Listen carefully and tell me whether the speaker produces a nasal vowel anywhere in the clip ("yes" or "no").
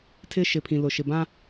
yes